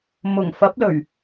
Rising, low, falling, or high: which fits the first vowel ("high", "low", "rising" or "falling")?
low